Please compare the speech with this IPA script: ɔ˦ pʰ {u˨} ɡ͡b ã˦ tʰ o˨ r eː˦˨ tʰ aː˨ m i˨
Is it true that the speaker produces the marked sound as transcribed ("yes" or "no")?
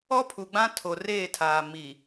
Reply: yes